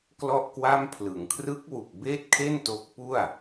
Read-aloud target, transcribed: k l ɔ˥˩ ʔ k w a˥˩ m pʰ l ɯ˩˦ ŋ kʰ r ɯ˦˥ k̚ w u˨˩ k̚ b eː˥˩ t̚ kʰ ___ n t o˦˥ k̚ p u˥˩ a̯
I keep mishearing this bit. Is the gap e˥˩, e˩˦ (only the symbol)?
e˥˩